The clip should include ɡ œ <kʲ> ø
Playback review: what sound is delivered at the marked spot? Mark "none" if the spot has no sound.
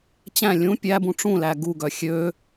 xʲ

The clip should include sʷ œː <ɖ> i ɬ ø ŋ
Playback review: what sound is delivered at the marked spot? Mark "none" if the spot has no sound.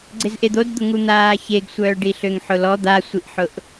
ɖ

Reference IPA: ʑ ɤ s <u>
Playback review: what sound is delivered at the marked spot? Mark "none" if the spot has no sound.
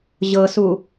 u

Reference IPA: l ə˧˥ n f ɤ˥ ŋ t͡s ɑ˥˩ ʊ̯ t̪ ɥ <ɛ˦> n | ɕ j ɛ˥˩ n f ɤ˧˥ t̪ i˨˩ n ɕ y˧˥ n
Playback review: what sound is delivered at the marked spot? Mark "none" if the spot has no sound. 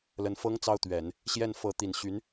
ɛ˨˩˦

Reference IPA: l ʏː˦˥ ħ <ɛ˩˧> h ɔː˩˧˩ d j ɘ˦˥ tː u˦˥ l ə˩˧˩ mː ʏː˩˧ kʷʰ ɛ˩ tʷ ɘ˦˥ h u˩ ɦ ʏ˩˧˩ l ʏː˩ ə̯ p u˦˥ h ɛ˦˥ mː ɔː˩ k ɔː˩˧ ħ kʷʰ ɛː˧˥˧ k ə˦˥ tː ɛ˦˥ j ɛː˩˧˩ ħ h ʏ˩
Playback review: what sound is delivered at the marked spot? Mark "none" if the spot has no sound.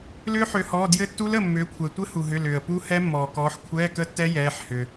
ø˩˧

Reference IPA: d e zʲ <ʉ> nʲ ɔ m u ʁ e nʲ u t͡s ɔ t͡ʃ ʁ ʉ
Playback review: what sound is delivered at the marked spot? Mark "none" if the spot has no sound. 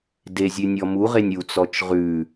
ʉ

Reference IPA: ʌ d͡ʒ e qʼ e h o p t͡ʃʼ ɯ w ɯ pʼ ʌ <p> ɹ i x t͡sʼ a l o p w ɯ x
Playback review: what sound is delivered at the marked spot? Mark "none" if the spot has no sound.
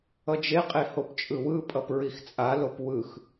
p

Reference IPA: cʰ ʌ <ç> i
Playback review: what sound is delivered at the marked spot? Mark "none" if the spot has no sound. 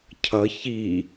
ç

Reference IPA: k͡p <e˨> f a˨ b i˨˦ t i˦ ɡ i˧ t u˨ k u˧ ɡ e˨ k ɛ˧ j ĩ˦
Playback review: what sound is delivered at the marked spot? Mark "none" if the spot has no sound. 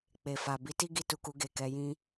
e˨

